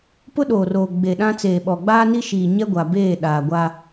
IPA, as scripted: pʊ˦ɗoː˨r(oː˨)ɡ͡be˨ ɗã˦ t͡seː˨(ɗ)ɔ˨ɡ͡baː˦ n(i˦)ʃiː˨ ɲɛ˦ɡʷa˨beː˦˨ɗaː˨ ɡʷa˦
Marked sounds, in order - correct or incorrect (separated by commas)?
correct, incorrect, correct